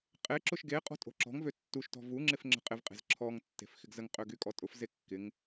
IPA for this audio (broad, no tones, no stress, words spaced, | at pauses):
qʼeǁʊʃ ɡeqʼɔ̤ tʼo̤ǁɔ̤ŋvø tːuʃtɔ̤ vuŋ͡ǁɪf ŋ͡ǁə̤qʼɪvqʼe̤z ǁʰɔŋtːe̤f xɪɡzəŋqʼø ɡykʼɔtʼʊfze kːɪŋ